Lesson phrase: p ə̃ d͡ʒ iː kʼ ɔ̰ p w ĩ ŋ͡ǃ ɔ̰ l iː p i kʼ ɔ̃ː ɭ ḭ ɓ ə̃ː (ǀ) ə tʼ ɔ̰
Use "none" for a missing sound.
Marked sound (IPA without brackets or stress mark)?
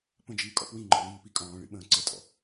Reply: ǀ